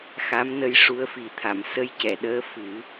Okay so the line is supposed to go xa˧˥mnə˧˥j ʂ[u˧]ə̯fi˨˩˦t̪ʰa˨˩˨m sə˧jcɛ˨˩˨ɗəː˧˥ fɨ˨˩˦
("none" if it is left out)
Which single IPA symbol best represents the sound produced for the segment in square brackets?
u˧˥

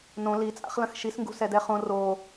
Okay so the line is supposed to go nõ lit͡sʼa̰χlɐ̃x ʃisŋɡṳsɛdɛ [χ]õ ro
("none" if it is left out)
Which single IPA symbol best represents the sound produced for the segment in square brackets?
χ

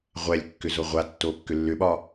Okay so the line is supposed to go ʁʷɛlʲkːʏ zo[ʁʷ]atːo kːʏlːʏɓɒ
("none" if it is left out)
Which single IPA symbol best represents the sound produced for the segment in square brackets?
ʁʷ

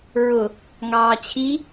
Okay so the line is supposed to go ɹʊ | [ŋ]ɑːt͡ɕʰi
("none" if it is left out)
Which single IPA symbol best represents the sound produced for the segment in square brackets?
ŋ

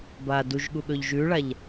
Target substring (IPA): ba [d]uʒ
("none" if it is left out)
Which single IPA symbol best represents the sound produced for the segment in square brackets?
d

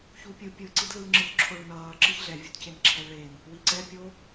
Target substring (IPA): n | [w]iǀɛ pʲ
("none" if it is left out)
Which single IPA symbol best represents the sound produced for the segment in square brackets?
w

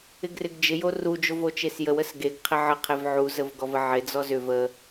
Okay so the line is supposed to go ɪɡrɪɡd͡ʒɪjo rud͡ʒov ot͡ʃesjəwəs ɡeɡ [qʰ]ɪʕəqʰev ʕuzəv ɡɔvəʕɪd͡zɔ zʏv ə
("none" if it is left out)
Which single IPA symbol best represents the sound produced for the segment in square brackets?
qʰ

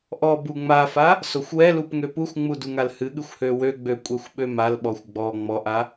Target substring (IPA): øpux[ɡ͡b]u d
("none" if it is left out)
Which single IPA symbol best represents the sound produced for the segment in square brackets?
ŋ͡m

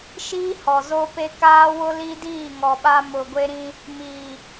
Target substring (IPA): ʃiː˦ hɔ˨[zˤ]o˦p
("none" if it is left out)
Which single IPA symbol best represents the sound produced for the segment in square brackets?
z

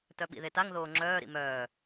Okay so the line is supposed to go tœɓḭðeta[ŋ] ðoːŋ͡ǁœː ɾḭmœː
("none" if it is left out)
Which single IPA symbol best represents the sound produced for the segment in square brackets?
ŋ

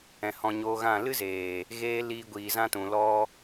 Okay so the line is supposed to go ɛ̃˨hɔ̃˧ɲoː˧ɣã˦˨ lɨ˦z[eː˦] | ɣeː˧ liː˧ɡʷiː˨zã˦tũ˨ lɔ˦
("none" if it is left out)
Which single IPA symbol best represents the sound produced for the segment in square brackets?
eː˨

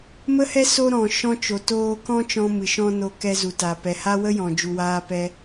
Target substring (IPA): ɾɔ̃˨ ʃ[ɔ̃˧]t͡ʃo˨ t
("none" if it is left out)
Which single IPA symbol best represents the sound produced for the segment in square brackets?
ɔ̃˧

